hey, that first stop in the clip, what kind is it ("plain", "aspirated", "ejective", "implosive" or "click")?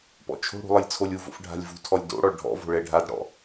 plain